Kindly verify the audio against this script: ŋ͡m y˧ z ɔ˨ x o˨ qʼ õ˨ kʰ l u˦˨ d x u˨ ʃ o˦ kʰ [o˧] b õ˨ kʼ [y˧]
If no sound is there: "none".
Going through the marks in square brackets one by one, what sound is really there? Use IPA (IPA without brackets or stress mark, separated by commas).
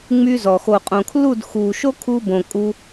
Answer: u˧, u˧